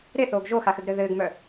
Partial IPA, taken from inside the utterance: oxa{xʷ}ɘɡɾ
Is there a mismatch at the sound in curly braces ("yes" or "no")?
yes